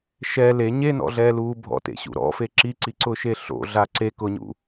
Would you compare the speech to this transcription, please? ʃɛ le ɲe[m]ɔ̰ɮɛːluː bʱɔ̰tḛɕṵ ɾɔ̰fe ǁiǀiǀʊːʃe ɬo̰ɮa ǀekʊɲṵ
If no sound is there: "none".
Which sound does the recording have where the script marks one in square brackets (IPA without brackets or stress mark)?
n